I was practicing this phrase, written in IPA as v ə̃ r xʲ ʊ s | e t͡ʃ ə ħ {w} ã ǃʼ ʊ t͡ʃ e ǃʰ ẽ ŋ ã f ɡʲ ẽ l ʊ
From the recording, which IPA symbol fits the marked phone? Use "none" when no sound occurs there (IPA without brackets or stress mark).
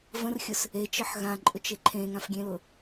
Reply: ɣ